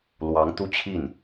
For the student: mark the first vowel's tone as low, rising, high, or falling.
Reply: rising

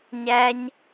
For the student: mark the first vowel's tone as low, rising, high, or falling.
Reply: high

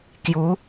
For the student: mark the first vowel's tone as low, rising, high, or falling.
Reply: rising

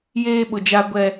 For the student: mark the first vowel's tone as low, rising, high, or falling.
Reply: high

